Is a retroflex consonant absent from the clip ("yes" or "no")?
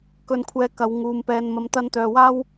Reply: yes